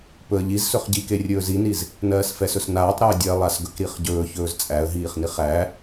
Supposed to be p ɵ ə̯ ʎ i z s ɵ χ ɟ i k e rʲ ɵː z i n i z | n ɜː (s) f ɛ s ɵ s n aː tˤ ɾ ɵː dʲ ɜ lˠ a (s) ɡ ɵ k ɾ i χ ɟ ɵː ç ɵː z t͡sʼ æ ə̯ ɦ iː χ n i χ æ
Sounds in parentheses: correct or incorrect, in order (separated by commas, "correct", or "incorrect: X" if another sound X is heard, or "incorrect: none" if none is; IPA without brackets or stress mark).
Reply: correct, correct